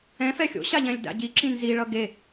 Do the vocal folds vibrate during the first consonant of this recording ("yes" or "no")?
no